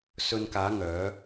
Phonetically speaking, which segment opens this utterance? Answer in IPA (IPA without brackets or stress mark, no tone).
s